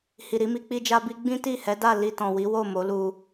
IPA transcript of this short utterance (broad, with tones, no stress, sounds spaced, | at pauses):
h i˨ ɾ i˨˦ m i˧ k͡p i˦ d͡ʒ a˦ b i˦ ɡ͡b ĩ˦ t i˦˨ h ɛ˨˦ d a˦˨ l i˧ t ɔ̃˨ w i˨˦ w o˦˨ m o˨˦ l u˧